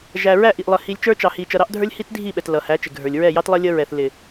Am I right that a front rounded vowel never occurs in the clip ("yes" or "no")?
yes